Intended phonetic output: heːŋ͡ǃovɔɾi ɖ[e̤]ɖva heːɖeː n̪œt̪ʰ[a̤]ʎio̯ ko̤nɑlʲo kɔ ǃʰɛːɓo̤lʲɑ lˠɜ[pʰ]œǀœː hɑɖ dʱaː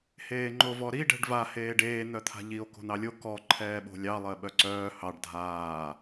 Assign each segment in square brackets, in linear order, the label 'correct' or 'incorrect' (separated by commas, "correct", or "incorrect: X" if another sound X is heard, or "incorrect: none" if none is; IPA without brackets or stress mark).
incorrect: ɛ̤, correct, incorrect: ɓ